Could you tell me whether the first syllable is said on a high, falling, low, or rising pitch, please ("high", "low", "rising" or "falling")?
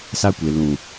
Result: high